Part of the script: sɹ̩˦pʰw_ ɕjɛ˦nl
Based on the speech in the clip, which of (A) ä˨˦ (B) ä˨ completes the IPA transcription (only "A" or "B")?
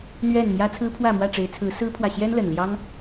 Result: B